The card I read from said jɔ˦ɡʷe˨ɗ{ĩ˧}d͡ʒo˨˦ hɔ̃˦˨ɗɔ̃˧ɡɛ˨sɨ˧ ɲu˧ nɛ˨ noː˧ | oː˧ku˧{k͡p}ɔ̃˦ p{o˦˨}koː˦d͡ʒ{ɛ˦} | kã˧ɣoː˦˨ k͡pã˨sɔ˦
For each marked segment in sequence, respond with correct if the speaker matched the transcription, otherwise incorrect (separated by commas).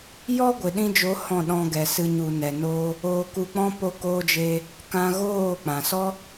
correct, correct, incorrect, incorrect